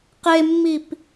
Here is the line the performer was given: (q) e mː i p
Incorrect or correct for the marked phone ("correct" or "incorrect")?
correct